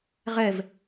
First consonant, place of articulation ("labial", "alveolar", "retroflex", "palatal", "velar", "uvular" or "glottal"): uvular